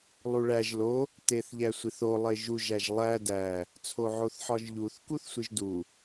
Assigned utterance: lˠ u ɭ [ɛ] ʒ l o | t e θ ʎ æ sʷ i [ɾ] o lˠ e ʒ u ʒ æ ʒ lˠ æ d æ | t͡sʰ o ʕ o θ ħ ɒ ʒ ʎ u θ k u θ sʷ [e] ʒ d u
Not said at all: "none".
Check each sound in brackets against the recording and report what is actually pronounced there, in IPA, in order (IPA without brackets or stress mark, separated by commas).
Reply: æ, θ, i